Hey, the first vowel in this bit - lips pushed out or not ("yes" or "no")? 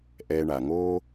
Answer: no